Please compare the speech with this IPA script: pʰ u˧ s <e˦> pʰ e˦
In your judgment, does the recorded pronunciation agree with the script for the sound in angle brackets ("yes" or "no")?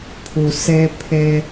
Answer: yes